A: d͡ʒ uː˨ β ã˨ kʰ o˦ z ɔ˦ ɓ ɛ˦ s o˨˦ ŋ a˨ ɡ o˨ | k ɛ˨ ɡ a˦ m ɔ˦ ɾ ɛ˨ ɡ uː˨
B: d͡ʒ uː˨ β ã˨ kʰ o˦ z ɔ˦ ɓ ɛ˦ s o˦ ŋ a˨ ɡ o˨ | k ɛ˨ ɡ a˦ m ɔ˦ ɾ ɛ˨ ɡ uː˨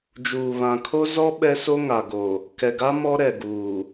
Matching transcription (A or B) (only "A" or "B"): B